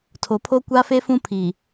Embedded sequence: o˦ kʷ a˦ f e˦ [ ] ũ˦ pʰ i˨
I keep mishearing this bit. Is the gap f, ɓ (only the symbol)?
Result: f